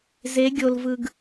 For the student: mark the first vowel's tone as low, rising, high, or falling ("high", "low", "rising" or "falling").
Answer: rising